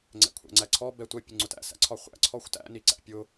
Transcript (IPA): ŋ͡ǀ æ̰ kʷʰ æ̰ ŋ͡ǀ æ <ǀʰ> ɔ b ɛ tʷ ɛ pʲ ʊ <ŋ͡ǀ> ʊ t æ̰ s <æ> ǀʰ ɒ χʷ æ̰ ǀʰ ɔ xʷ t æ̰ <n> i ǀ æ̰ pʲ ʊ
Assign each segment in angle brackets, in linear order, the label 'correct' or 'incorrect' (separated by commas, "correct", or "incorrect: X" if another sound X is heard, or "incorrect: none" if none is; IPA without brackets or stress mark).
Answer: correct, correct, incorrect: æ̰, correct